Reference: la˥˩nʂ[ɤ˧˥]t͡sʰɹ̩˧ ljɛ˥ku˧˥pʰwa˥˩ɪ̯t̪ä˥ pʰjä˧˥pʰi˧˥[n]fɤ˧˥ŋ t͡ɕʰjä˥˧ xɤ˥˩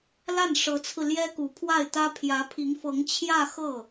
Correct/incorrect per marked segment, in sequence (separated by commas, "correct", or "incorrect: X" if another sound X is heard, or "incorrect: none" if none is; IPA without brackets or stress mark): correct, incorrect: ŋ